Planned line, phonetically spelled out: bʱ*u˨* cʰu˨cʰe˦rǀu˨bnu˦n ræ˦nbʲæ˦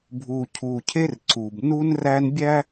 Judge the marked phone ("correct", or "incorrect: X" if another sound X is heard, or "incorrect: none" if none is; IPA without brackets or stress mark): correct